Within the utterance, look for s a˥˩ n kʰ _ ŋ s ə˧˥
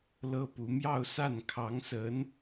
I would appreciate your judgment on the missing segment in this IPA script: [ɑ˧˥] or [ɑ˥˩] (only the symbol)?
ɑ˧˥